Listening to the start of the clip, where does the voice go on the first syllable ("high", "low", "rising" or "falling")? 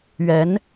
rising